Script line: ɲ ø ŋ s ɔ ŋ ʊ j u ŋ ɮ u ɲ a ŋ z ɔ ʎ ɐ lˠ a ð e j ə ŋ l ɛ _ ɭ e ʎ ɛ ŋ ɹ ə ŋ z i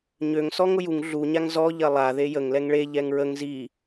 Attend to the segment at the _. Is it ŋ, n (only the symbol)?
ŋ